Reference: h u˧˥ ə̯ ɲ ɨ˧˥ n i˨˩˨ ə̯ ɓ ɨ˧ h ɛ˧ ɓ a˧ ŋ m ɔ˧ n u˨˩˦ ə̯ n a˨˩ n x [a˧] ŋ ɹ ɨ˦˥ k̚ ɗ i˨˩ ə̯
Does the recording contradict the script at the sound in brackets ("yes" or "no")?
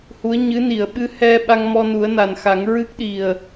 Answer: yes